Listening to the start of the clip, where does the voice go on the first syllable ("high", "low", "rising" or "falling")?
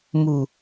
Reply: low